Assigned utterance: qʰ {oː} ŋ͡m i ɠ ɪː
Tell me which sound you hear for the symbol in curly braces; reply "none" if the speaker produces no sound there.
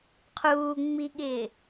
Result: uː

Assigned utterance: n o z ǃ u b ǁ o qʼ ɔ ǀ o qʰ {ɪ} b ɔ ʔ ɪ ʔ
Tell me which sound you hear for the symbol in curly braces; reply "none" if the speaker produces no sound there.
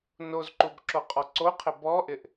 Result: ɪ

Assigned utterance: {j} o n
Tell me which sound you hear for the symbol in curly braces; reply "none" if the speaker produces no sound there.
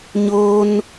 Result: ɲ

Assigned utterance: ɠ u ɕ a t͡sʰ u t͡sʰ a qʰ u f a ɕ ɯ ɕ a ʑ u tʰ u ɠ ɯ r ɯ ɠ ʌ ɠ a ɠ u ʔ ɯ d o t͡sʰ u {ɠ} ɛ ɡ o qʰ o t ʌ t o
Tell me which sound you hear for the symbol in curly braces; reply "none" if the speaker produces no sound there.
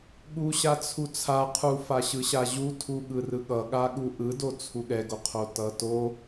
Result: ɠ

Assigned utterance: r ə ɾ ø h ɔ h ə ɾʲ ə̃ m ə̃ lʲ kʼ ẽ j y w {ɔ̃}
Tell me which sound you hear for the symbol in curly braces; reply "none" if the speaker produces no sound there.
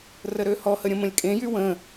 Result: ə̃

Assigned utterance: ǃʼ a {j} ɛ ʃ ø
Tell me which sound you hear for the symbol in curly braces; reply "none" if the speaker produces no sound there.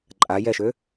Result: j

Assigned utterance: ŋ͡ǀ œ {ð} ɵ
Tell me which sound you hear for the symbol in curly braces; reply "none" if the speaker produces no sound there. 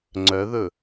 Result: ð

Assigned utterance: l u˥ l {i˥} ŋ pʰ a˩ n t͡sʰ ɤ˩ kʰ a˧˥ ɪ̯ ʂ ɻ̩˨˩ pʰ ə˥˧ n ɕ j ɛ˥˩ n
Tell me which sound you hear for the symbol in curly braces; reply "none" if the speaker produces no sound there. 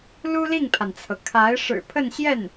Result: i˥˩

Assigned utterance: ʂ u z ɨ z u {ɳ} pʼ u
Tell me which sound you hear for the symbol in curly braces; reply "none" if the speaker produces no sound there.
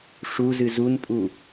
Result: n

